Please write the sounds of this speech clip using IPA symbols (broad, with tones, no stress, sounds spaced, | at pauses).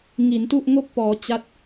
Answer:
ŋ i˩˦ n t u˥˩ ʔ ŋ o˥˩ k̚ p ɔː˩˦ t͡ɕ a˦˥ t̚